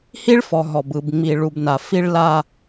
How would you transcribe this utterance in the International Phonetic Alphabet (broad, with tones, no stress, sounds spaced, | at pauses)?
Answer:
h i˦ ɭ f ɔ˨ ɦ ɔ˨ b ɯ˨ b ŋ͡m i˨ ɭ u˨ b n a˨ f i˦ ɭ l a˦